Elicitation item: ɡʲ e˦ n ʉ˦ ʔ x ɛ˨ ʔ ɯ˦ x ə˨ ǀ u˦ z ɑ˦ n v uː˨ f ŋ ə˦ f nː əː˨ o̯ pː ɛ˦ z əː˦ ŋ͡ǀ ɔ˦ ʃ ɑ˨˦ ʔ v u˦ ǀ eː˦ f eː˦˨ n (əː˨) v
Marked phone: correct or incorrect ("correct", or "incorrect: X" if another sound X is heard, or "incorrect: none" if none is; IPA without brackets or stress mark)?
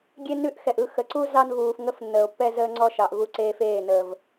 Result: correct